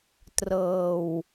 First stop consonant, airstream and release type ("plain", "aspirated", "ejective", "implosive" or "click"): plain